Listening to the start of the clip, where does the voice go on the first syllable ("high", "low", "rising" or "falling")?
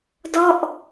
falling